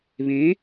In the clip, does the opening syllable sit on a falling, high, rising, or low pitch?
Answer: rising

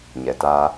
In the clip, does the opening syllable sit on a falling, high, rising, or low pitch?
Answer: low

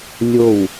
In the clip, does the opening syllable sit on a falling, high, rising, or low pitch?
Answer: falling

